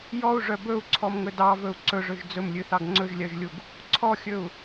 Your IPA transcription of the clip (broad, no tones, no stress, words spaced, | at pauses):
jɔu̯ʐœ bɵu̯ǀʰɔmŋɵ dɑvɵu̯ ǀɵʐɵʒ d͡zɵmlʲʉθɑɡ ŋ͡ǀɵʒlʲœʒlʲuɡ | ǀʰɔxʲɵu̯